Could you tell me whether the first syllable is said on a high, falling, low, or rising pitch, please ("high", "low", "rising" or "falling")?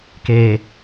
low